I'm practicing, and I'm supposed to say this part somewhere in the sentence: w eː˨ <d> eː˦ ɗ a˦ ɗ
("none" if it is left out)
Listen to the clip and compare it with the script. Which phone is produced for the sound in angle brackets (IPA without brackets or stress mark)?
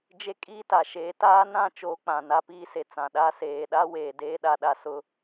d